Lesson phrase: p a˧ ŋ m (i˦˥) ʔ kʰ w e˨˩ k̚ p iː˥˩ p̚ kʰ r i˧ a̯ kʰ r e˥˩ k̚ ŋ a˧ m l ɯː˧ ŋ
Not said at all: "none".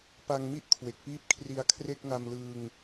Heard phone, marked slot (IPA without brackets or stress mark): i˥˩